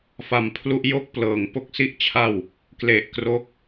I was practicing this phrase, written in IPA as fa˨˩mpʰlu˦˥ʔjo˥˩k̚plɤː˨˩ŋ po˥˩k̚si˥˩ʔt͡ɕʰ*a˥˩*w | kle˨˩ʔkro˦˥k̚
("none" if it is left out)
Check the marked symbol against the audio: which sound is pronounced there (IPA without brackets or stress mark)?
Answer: a˥˩